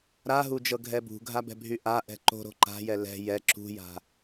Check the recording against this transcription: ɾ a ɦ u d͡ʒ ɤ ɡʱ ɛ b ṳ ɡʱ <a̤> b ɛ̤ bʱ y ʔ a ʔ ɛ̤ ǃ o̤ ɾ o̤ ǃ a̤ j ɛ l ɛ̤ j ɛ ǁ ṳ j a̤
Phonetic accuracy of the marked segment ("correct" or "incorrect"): incorrect